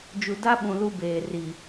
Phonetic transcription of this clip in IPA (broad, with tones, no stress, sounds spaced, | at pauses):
d͡ʒ u˨ d a˦ ɓ ũ˨ l u˦ b eː˨ r i˨